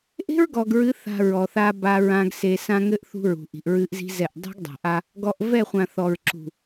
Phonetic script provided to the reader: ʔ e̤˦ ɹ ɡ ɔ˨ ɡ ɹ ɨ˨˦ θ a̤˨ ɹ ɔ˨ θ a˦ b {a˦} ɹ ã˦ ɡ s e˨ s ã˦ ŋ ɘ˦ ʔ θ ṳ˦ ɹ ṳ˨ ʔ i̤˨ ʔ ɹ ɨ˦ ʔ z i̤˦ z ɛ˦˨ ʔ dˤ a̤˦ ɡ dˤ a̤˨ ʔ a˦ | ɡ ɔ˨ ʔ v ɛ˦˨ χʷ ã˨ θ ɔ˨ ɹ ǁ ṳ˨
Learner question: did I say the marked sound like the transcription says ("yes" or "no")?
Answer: yes